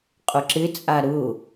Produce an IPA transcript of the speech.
qʼ ʊ ǁ ɪ t͡sʼ a ɾ ʊ

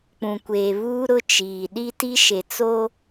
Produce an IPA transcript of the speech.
k͡p ũ˨ kʷ eː˨ β uː˦ ɾ ʊ˦ t͡ʃ iː˨ ɗ i˦ t i˦ ʃ e˨ t͡s o˦

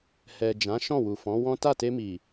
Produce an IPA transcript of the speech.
h ɛ˨ d͡ʒ ã˨˦ ʃ ɔ̃˦˨ w u˨ f ɔ̃˨˦ w ɔ̃˦ t a˦˨ t e˧ m i˨

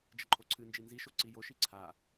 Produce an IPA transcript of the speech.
d͡ʒ ə ǃʰ o ǀʰ ɨ n d͡ʒ i n z i ʃ o ǀ i j o ʃ i ǀʰ a

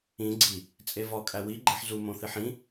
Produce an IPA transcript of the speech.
ĩ ɡ͡ǀ i | t͡sʼ e v ɒ kʼ æ w i ɡ͡ǃ e ħ z u m õ θ i ħ ĩ

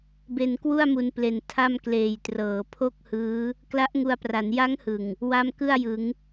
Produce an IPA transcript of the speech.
b e˧ n k w u˥˩ a̯ m u˧ n p l e˨˩ n tʰ a˥˩ m k l eː˨˩ j t r ɤː˩˦ pʰ o˥˩ k̚ h ɯː˦˥ | k l a˦˥ ʔ ŋ u˧ a̯ p r a˩˦ n j a˦˥ ŋ h ɯ˨˩ ŋ | w a˦˥ m k ɯ˥˩ a̯ j ɯ˩˦ ŋ

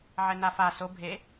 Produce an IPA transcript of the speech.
ʕ ɛ n a f a s o bʱ e

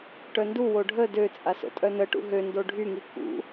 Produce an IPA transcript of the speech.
ʈ œ n d u w o ɖʱ ə d ø t͡sʼ a s o̰ tʼ œ n ə ʈ ṵ ɦ ø n d o ɖʱ y ŋ i k ṵ

